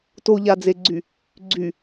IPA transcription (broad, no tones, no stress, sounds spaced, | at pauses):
t o ʎ a d͡z e ɡ͡ǀ y | ɡ͡ǀ y